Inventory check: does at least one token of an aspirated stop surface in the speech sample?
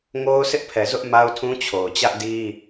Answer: yes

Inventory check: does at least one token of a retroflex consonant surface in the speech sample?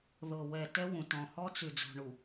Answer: yes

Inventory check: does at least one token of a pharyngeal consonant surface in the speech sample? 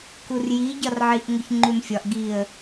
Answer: yes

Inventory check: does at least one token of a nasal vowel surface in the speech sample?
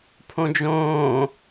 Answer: yes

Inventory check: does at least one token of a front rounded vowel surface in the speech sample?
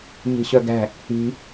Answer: yes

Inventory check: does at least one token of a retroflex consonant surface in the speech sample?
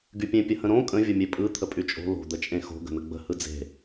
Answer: no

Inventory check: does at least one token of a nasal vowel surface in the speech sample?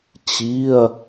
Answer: no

